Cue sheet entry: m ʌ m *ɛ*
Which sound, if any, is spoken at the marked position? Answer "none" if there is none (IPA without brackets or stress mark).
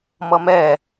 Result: ɛ